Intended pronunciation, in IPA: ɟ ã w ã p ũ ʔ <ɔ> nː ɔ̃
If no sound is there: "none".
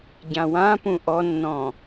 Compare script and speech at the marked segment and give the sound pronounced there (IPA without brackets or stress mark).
ɔ